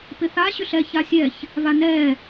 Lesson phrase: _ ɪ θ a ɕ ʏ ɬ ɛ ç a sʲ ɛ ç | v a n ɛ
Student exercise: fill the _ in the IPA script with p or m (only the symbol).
p